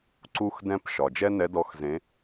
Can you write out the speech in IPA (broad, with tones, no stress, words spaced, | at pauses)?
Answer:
ǀu˥xdɛ̃˥p ʃɒ˨˩d͡ʒɛ˥nɛ˧˥dɔ˧˥x zẽ˧˥